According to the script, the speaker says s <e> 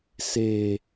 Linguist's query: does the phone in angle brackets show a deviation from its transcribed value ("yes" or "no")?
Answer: no